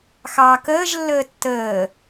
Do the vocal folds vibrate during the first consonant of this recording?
no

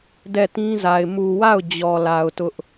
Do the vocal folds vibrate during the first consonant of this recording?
yes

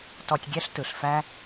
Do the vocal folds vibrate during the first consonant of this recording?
no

